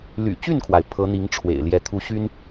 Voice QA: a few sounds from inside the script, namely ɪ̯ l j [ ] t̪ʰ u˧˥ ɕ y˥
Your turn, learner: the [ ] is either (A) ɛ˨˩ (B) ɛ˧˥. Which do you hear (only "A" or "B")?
B